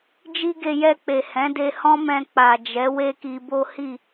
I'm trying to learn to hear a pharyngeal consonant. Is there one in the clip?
no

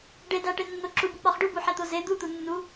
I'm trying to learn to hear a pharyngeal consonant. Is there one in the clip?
yes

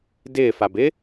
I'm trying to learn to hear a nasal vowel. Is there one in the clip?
no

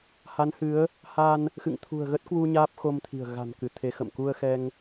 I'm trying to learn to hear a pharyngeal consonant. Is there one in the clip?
no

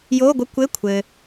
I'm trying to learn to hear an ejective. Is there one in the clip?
no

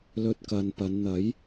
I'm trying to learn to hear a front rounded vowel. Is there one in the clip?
no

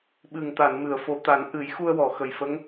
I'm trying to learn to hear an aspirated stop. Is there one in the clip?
no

